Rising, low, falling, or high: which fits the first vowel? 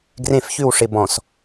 falling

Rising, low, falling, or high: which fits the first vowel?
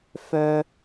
high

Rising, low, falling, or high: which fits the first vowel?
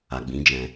low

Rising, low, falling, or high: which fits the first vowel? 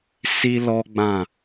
high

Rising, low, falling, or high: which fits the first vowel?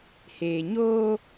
low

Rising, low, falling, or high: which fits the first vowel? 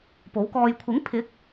rising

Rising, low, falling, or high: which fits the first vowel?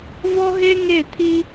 high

